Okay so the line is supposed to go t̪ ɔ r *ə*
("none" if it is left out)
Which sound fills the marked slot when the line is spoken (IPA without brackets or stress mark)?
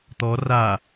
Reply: a